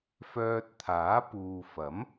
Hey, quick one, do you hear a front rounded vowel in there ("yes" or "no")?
yes